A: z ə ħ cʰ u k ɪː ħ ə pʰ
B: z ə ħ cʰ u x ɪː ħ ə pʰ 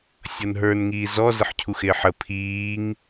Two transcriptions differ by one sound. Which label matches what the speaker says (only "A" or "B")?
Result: B